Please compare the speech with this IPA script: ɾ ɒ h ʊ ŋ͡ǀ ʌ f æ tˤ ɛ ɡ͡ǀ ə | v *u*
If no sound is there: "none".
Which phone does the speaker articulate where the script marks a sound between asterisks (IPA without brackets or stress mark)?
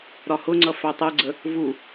u